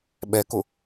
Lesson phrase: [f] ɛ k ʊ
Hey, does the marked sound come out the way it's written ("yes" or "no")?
no